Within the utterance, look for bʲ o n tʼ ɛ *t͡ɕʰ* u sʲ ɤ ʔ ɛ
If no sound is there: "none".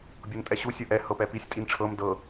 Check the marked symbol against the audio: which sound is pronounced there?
ɕ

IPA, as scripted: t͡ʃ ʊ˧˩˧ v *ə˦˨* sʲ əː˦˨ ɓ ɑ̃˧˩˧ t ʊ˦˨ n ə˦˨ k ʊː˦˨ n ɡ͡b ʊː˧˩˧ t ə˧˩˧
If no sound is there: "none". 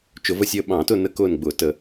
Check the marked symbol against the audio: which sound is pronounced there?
ə˦˨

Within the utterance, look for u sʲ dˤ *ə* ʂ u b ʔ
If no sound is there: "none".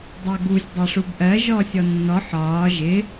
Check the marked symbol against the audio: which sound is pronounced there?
æ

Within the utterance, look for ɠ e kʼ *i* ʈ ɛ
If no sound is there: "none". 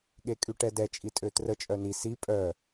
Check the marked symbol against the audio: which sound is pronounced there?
y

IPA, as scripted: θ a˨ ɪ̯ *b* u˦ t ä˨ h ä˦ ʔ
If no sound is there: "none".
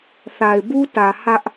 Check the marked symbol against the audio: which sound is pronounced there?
b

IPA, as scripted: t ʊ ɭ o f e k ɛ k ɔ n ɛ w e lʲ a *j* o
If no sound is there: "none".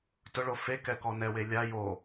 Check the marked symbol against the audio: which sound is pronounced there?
j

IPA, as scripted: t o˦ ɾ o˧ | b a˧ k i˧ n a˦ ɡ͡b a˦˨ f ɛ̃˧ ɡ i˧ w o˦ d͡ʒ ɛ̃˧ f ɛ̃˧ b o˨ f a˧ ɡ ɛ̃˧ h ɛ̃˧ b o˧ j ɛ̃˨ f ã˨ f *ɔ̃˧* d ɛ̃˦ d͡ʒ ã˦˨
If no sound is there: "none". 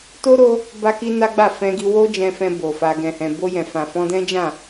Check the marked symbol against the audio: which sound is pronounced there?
ɔ̃˧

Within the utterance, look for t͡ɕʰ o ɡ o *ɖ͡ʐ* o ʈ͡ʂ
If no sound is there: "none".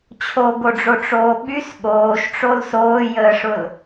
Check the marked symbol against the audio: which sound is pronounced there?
ɖ͡ʐ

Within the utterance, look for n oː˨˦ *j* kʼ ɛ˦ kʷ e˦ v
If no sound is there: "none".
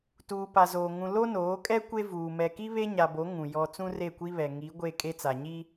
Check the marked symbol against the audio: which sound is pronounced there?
none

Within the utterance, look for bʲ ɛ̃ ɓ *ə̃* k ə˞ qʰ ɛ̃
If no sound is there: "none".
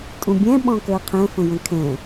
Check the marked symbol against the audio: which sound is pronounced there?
ɔ̃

